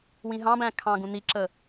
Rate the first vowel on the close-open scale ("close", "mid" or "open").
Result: close